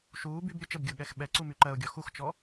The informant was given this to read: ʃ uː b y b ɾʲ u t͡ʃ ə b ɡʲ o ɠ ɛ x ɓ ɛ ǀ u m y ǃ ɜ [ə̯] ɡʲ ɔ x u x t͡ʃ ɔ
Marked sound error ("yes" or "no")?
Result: yes